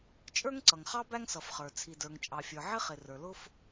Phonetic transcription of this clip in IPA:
t͡ʃʼə˞˥ŋǀʌ˩ŋχɑ˥ bæ˥ŋsʌ˩f χə˞˩ t͡sʰi˩də˞˩ŋt͡ʃʼɑ˩fʲə˞˩ ʕɪ˥ χɪ˩ rə˞˩lʊ˥f

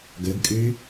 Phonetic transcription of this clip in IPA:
ɡɵɡkʼʉ

